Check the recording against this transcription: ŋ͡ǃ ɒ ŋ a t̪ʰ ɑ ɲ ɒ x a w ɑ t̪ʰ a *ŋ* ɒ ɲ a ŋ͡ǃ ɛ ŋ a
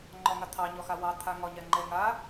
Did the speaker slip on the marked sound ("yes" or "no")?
no